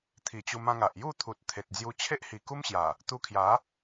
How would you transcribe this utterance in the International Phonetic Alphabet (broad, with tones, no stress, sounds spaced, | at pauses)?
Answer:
t̪ʰ i˨˩ t͡ɕ u˧ m ã˧ ŋ a˨ ʔ j u˥˧ t̪ʰ u˨ t̚ t̪ʰ e˨ t̚ d͡z j u˧ t͡ɕʰ e˦ ʔ h i˨˩ k u˦ m ɕ j a˨˩ | t̪ u˧ kʰ j a˨˦